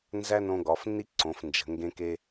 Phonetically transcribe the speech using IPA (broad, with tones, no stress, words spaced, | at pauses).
nzæ˥nõ˧ɡɒ˩˧fnːi˥ ǀõ˩˧fnd͡ʒə̤˩˧ ŋɡẽ˧ke˧